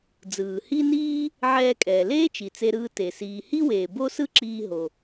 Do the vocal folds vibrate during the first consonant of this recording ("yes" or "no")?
yes